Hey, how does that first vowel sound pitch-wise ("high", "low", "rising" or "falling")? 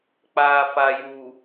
low